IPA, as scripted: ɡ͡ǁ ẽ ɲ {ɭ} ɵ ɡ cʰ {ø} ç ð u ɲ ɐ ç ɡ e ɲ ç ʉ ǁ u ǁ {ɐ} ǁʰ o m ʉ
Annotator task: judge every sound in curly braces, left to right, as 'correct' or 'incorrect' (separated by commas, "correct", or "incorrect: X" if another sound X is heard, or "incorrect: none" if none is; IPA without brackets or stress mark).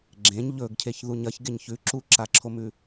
incorrect: ʎ, incorrect: e, incorrect: a